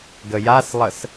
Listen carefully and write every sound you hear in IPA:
ɡ ə j a s lˠ ə s

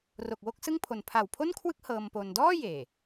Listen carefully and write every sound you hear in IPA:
r o˨˩ k̚ w o˥˩ k̚ s ɯ˥˩ ŋ pʰ o˨˩ n pʰ a˨˩ w pʰ o˥˩ n kʰ w ɯ˥˩ k̚ h ɤː˧ m p o˧ n d ɔː˥˩ j eː˨˩

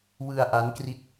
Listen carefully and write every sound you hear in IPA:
w ɯ˧ a̯ ʔ a˦˥ n k r i˦˥ t̚

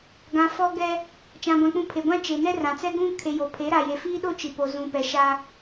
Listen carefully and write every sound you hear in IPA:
ɡ ã˨ f ɔ˦ ɡ ɛ˦ | t͡ʃ ã˨ ɡʷ ã˨ k͡p ũ˨ pʰ e˨ ɡʷ ã˦ t͡ʃ e˨ n ɛ˦ r ã˨ t͡s ɛ˦ ɡ ũ˦ kʰ e˨ j o˨ pʰ e˨˦ ɾ a˨ j e˨ f iː˦ ɗ o˦ t͡ʃ i˨ p o˨ z ũ˨ p ɛ˨ ʃ a˦

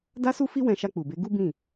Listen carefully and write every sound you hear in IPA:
d a˦ s u˦ f i˦ w ɛ̃˧ ʃ a˧ k͡p u˨ b e˨˦ ɡ u˦ b ĩ˦˨

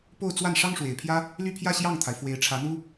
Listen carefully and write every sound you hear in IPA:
p o˥˧ ʊ̯ t͡s w a˥˩ n ʂ ɑ˥ ŋ ʂ w e˨˩ ɪ̯ pʰ j ä˥ | l y˥˧ pʰ j ä˥˧ ɕ j ɑ˥˩ ŋ t̪ʰ a˩ ɪ̯ f w e˧˥ ɪ̯ ʈ͡ʂʰ ä˧˥ n̪ u˥

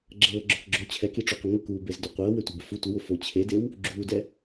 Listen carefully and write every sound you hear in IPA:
ɡ͡ǁ ɤː ɡ͡ǁ o k ɡ͡ǁ o t͡ɕʰ ɛ k i ʈ͡ʂ o qʷ ə ŋ ə k uː b e z d o qʷ ɤː w e tʷ e b ʊ f u tʷ ə w ʊ f o t͡ɕʰ e d e w | ɡ͡ǁ uː d ɛ

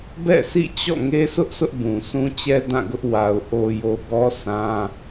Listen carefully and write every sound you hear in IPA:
b ɛ̰˦˨ sʰ ḭ˦˨ t͡ɕ ɔ̰˦˨ ŋ e˦ sʰ ʊ˦ ʔ s ʊ˦ ʔ b ũ˨ s ũ˦ t͡ɕ ɛ˦ d ã˦˨ ɡ ʊ˦ ʔ w a˨ ʊ̯ ʔ o˨ j o˨ ɡ ɔ˦ sʰ ã˦

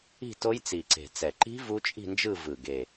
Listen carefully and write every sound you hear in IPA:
i̤˥˧ t o˦˥ j t͡s i˨˩ ǀ e̤˨˩ t͡s ɛ˨˩ ǃ i̤˦˥ v u˦˥ t͡ʃʼ i̤˥˧ n d͡ʒ ɯ˥˧ v ɯ˨˩ ɡ e˨˩

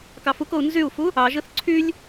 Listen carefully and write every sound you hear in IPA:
k ɑ f u k o u̯ n z y u̯ f u | ɑ ʒ ɯ θ ǀʰ y lʲ

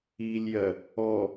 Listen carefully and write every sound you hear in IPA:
i lʲ j ɜ | ɔ

